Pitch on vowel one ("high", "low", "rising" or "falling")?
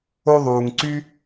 high